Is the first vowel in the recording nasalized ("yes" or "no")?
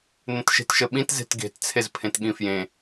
yes